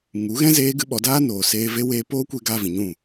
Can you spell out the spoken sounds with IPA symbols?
ŋ u˨˦ ɣ ɛ̃˦ z eː˦ ɡ ɨ˦ ɓ ɔ˨˦ d aː˦ n oː˨ s eː˧ v e˦ w eː˧ p oː˦ kʷ e˧ ɡ aː˧ v ĩ˨ ɲ ũ˦˨

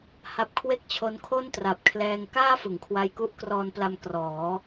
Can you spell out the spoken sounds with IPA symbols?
h a˦˥ p̚ kʰ w e˥˩ k̚ t͡ɕʰ o˦˥ n kʰ o˥˩ n t r a˨˩ p̚ kʰ l ɛː˧ ŋ k aː˥˩ f ɯ˩˦ ŋ kʰ w a˧ j k u˦˥ ʔ k r ɔː˧ n p l a˧ m k r ɔː˩˦

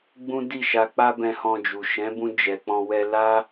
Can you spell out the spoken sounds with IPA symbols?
ɡ͡b ũ˦ d i˦˨ ʃ a˧ k͡p a˦ b ɛ̃˧ h ɔ̃˧ d͡ʒ u˨ ʃ ɛ̃˨˦ b ũ˧ d͡ʒ ɛ˨ k͡p ɔ̃˧ w ɛ˧ l a˦

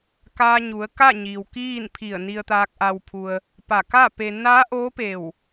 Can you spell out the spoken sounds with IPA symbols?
k aː˧ ɲ u˩˧ ə̯ k a˥˨ ɲ iː˩ w k iː˥˨ n pʰ i˧˩ ə̯ n i˧ ə̯ t̪ aː˧ k̚ ʔ a˧ w pʰ u˧ ə̯ | p a˧˩ k a˥˨ p e˧ n a˧˥ ʔ oː˧˥ p e˧˩ w

